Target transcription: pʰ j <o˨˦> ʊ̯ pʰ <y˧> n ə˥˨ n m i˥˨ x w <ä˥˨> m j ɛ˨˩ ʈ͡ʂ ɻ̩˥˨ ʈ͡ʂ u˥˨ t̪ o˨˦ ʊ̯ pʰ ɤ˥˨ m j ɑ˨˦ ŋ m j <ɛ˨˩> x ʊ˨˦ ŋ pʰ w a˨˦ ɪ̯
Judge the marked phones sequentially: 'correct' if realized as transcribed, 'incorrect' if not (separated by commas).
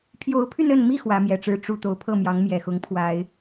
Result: correct, correct, incorrect, correct